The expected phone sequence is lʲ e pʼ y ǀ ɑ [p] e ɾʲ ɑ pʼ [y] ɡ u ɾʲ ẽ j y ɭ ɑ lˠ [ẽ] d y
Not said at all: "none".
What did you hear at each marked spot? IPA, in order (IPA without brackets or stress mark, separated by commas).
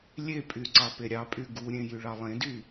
p, y, ẽ